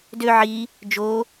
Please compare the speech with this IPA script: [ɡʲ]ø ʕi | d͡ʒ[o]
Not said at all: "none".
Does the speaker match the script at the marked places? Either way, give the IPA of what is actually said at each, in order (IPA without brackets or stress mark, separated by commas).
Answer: d, o